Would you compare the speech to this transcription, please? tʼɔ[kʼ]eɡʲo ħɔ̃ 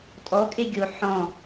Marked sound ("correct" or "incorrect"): correct